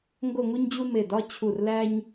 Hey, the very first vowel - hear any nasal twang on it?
no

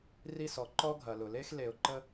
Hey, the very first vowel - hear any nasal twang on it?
no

